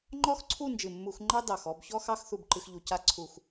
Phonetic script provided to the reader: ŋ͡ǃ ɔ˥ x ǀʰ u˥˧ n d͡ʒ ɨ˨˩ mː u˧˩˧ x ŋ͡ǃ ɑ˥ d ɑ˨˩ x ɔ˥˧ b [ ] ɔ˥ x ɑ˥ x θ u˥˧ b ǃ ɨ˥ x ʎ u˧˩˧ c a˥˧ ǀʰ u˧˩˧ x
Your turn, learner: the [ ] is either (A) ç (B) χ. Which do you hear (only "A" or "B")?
A